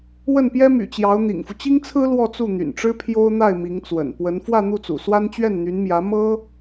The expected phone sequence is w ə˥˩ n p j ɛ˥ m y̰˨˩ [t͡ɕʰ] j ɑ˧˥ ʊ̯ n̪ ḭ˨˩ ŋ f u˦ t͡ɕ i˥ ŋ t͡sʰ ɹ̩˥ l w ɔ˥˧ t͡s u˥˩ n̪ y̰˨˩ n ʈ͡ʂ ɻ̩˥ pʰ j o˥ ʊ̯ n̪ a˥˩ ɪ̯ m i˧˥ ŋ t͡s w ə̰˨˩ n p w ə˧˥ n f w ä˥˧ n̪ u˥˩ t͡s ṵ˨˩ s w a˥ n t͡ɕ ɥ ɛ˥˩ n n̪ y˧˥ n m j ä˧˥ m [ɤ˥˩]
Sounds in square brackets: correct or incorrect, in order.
incorrect, incorrect

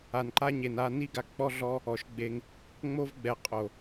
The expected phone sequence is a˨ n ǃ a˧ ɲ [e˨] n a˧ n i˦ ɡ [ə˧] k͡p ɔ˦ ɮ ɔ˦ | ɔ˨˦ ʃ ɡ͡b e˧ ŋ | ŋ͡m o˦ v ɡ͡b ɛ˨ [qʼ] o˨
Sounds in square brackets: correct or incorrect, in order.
correct, incorrect, correct

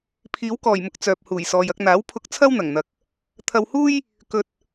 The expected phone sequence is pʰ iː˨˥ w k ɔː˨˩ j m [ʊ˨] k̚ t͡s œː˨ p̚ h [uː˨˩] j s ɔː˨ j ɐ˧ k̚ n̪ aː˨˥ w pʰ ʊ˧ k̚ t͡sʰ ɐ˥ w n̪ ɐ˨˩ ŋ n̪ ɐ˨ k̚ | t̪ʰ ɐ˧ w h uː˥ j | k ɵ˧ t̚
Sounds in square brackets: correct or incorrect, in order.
correct, correct

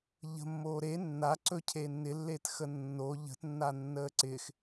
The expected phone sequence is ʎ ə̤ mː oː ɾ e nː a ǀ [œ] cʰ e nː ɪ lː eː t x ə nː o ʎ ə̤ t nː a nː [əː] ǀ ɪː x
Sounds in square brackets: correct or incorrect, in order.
incorrect, correct

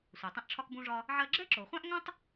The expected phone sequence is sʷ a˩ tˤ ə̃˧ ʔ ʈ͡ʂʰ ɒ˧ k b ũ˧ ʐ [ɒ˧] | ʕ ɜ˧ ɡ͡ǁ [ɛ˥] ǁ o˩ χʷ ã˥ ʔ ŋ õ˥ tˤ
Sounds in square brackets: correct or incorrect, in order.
correct, correct

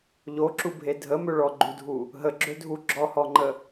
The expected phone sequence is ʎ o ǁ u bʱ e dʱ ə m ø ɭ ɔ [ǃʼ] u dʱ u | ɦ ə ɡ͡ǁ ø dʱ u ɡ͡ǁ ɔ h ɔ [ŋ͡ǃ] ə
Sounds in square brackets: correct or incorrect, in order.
incorrect, correct

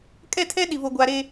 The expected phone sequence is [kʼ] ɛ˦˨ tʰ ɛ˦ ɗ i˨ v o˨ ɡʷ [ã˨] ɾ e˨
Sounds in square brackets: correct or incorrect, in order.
correct, incorrect

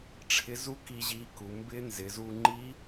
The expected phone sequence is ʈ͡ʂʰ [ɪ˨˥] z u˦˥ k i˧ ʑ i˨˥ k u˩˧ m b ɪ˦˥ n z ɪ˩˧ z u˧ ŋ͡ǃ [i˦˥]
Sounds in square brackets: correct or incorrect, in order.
correct, correct

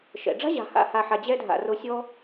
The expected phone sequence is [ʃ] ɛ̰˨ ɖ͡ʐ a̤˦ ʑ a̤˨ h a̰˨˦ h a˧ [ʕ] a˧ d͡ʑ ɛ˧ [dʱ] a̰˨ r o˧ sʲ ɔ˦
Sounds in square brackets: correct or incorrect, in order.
correct, incorrect, correct

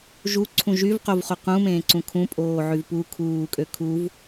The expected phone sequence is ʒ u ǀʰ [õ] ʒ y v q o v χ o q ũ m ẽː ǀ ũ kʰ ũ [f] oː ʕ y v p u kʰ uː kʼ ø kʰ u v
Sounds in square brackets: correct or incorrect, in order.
incorrect, incorrect

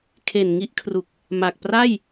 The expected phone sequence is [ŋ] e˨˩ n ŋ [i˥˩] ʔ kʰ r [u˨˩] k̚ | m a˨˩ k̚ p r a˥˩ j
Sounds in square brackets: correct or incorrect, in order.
incorrect, incorrect, correct

